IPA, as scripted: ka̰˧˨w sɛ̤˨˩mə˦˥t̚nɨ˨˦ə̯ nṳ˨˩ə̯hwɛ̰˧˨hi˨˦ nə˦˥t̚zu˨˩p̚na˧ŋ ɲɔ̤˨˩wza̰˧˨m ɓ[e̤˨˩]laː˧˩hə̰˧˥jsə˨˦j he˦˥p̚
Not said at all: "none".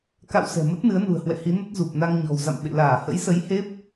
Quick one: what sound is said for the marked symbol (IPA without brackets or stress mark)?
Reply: ḛ˧˨